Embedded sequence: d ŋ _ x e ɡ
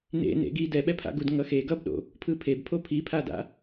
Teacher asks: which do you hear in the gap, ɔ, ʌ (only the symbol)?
ʌ